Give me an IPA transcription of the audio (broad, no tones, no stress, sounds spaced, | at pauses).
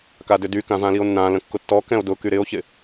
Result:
k a d ʏ d y k ã v ã l i o̯ nː ã l ə̃ kː ʊ tː ɔ k ɛ̃ o̯ d ʊ k y ɾ ɪ o̯ ç ɪ